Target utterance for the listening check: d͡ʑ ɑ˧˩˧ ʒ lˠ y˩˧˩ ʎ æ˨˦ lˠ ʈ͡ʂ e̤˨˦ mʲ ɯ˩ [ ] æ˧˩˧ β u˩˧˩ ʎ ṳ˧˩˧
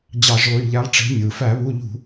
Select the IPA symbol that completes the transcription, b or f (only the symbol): f